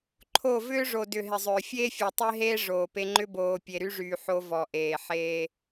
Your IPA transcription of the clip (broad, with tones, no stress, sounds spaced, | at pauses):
ǃʰ o˦˨ v ʏː˦ ʐ o˨ d ʏ˨ ɦ ɪ˨ zˤ ʏː˨ fʲ eː˦ fʲ ɔ˨ tˤ e˦ ɦ eː˦ ʐ oː˨ p e˦ ŋ͡ǃ ʏ˦ b oː˨ pʲ e˨ ɾ y˦ ʐ yː˨ ħ o˦ v ɔ˨ ʔ eː˨ ħ eː˦